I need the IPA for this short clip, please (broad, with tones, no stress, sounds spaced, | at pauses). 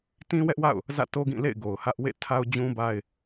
t ĩ˦ w ɛ˦ ʔ w a̰˦˨ ʊ̯ | z ä̰˦˨ t o˦ ɡ ĩ˦˨ l ḛ˦˨ ɪ̯ ɡ o˨ ʊ̯ h ä˦ ʔ w ḛ˦˨ tʰ a˦ ʊ̯ d͡ʑ ũ˦ b a˦ ɪ̯